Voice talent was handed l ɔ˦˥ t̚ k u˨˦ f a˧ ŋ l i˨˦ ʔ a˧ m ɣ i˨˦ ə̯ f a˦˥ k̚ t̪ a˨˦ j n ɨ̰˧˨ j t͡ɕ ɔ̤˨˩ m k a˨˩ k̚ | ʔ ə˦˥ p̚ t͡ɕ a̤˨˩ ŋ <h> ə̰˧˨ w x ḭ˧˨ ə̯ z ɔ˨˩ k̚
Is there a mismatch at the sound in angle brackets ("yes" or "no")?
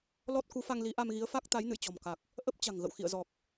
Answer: yes